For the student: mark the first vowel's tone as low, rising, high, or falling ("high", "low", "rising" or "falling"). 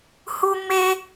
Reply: high